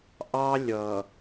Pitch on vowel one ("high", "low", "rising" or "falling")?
high